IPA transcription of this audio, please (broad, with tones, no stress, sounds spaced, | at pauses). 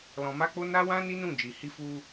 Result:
l ɔ̃˧ m a˦ k͡p o˦ n a˦ w ã˦ n i˦ n ũ˦˨ d͡ʒ i˨ h i˧ f u˧